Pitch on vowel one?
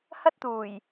high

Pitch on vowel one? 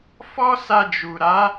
high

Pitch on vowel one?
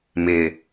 low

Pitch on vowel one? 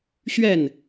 falling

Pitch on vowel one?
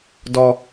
low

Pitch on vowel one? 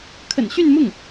low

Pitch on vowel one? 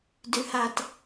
low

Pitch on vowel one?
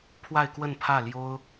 falling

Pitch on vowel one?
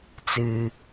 low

